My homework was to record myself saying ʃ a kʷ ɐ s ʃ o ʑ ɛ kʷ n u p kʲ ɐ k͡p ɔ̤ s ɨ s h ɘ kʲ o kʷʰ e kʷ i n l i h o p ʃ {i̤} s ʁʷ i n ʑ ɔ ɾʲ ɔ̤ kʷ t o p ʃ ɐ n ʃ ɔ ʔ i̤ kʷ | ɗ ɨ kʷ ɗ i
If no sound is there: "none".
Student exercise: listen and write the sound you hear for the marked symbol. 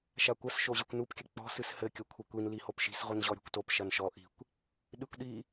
i̤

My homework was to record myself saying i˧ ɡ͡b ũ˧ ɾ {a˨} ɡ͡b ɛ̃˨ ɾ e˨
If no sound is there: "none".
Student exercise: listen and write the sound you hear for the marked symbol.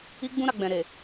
a˨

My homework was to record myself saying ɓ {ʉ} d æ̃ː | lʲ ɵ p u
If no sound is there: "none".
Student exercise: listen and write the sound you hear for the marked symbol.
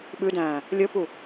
ʉ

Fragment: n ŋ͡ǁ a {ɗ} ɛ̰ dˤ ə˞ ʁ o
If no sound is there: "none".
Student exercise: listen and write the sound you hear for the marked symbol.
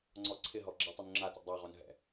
t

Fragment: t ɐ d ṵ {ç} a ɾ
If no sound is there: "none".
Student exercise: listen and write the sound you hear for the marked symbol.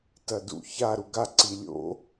ç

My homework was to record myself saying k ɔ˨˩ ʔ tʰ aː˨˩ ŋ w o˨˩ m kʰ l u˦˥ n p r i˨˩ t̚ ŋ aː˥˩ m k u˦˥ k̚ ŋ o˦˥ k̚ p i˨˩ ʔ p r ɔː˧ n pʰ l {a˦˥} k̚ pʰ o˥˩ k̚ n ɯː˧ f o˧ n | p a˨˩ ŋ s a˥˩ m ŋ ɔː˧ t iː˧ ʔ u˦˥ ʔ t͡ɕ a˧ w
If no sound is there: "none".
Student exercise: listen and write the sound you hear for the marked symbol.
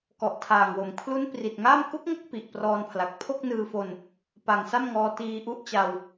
a˨˩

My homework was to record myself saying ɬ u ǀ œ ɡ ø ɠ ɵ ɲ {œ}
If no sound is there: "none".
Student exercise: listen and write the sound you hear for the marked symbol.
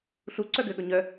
œ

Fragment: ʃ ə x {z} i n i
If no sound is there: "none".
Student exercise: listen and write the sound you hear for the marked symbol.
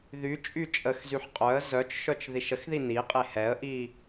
ð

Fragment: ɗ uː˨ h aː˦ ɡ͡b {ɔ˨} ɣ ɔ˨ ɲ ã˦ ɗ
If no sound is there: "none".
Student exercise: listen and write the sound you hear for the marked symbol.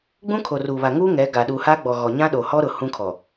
ɔ˨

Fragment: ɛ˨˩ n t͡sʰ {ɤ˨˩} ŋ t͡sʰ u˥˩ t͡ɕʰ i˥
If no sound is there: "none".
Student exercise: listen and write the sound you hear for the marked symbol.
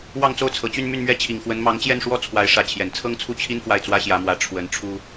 ɤ˥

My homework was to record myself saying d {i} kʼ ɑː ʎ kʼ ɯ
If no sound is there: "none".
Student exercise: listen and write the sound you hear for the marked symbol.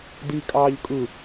i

